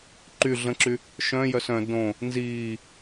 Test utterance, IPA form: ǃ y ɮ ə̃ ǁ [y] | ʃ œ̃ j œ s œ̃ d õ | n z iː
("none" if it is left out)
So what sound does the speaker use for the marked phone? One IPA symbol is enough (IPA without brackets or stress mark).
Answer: y